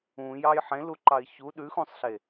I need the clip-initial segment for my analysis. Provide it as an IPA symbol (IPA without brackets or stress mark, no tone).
ũ